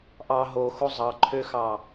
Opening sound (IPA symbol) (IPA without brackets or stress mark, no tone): ʔ